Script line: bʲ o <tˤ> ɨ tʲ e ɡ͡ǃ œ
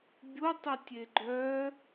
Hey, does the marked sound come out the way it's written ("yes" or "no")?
yes